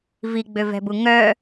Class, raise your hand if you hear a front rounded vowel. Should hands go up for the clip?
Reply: yes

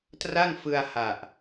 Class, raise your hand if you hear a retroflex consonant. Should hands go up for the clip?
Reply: no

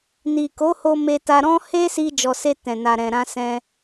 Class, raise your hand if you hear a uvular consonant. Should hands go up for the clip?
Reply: no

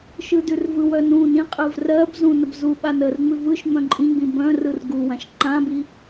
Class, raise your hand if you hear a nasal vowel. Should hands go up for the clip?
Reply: yes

